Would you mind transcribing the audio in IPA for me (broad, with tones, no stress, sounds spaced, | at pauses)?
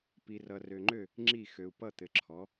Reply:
p i˨ r ʌ˨ r ø˨ ŋ͡ǃ ø˥˩ | ŋ͡ǁ i˥˩ x ø˨ u̯ p ʌ˥˩ t̪ ɘ˩˥ ǁʰ ɔ˩˥